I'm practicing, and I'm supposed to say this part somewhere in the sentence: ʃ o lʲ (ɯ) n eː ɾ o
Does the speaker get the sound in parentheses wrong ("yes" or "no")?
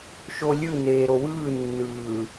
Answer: no